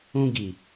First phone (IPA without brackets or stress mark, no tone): ũ